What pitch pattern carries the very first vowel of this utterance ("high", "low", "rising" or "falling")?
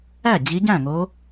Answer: falling